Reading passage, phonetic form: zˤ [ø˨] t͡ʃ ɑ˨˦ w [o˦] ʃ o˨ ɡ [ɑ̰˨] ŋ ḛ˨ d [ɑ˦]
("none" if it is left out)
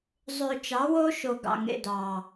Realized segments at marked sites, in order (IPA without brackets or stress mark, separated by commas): ø˨, o˦, ɑ̰˨, ɑ˨